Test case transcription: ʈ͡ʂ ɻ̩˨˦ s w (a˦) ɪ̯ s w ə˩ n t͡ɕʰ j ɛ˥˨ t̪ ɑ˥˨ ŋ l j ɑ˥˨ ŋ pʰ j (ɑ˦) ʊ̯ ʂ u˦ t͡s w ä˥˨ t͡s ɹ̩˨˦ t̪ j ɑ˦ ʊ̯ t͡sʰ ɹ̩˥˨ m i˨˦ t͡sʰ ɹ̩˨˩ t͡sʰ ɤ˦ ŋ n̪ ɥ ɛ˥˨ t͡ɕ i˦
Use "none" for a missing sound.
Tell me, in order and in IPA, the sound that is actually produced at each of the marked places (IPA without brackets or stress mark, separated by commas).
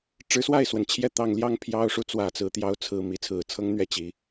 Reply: a˥˨, ɑ˦